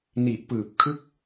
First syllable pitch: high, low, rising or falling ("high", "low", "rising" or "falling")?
low